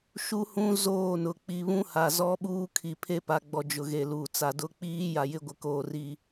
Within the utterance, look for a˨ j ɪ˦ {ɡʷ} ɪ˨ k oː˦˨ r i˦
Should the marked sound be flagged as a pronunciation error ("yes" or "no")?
no